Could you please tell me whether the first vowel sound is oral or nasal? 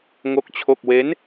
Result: oral